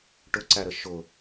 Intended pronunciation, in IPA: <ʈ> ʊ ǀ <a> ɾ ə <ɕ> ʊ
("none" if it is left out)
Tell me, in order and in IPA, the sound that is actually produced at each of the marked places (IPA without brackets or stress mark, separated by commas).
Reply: ʈ, æ, ʃ